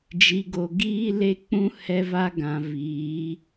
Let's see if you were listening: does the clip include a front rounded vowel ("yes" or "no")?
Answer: no